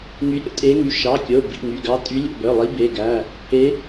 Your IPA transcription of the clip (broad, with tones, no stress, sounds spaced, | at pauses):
ŋ y˨˦ ɾʲ o̰˨˦ tʼ e˨˦ ŋ y˩˧˩ ʃ ɑ˩˧˩ kʲ o˩˧˩ b ḭ˩˧˩ ŋ y˩˧˩ ɡ ɑ˨˦ tʼ y˨˦ lʲ o̰˩˧˩ b œ˩˧˩ lˠ i˨˦ b e˩˧˩ ɡ æ˩˧˩ | e˨˦